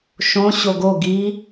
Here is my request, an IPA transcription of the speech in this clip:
ʃ õ ɕ o ɡ o ɡ i

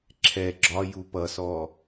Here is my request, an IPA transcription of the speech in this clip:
ǁʰ ɛ ɡ͡ǁ ɒ j u p ʌ s ɔ

